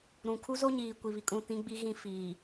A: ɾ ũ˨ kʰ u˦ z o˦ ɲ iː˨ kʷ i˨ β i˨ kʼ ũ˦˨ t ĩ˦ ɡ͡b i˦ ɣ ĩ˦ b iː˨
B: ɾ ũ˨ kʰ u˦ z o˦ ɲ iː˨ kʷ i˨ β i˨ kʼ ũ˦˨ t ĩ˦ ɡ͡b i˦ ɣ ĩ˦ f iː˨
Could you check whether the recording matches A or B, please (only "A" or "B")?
B